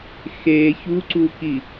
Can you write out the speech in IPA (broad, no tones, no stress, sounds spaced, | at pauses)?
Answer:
x e ç u ǀ u k i